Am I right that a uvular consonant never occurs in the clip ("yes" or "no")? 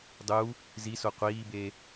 no